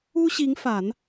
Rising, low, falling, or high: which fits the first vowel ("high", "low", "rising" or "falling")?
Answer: high